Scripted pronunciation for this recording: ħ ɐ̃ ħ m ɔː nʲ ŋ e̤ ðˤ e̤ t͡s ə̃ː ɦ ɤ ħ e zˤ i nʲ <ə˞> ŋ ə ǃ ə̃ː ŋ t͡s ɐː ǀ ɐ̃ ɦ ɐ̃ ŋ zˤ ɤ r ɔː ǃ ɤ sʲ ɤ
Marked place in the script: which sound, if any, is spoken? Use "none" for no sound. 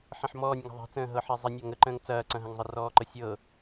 ɐ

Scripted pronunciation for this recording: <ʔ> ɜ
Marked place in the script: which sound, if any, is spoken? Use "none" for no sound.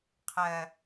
qʰ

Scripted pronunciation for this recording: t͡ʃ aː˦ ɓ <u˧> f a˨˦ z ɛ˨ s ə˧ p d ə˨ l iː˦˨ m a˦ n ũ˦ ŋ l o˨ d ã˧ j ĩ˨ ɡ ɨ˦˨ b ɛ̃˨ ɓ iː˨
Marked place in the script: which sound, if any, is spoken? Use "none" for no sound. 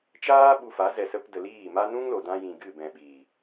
u˧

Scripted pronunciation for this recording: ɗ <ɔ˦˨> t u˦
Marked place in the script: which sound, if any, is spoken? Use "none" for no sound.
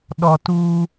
ɔ˨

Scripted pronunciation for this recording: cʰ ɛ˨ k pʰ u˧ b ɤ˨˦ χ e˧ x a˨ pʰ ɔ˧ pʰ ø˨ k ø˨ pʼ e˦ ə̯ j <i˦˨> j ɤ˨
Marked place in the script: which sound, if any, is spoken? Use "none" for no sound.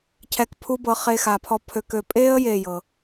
e˦˨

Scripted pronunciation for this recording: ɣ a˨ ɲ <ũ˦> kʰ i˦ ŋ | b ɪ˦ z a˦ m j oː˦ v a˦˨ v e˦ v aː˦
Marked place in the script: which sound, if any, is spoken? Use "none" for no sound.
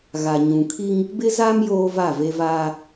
ũ˨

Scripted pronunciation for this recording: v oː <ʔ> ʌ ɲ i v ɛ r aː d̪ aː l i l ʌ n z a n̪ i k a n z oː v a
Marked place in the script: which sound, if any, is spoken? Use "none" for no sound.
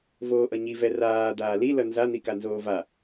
ʔ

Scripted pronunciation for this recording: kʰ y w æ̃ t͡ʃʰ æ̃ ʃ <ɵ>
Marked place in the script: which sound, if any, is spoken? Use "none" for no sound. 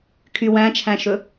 ɵ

